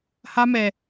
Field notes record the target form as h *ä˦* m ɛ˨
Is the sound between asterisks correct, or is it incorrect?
correct